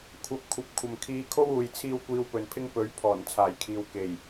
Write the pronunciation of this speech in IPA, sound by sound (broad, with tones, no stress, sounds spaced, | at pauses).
kʷʰ ɐ˨ p̚ kʷʰ ɐ˨ p̚ kʷʰ ɐ˨ m kʰ iː˧ kʰ o˥ w uː˨ j t͡sʰ iː˥ w kʷ iː˧ w p ɵ˨ n pʰ ɪ˥ ŋ p ɵ˨˥ ɥ pʰ ɔː˨˩ n t͡sʰ aː˨˩ j kʰ iː˨ w k e˨˩ j